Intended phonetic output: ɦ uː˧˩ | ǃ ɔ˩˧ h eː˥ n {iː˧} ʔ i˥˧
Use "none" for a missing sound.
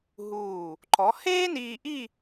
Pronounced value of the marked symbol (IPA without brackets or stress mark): iː˧